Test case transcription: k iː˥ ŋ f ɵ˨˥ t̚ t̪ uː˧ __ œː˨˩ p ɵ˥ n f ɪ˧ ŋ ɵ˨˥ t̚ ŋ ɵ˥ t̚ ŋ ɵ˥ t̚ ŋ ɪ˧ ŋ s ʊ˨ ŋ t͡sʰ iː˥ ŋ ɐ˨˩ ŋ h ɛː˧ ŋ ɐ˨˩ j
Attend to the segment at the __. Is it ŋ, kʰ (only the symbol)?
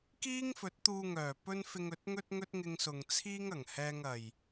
ŋ